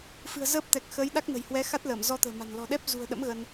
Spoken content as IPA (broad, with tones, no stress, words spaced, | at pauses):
fɨ̤˨˩ə̯zəː˦˥p̚t̪ɛ˨˩k̚ xəː˨˦jɗa˦˥k̚nə̤˨˩jhwɛ˨˦ xa˦˥t̚ ləː˧˩m zɔ˧t̪ə̤ː˨˩ma̤˨˩n lɔ̤˨˩ɗɛ˦˥p̚zṳ˨˩ə̯ɗə̰˧˥m ɣə˧n